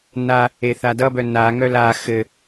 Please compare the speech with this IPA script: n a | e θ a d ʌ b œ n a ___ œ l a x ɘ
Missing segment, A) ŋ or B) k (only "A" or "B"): A